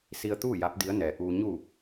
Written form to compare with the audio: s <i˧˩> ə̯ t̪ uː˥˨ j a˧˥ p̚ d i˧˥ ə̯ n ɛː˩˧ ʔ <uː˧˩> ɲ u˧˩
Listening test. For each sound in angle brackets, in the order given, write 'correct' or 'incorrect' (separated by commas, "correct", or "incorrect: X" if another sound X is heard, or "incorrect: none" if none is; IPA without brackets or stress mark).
incorrect: i˧, incorrect: uː˩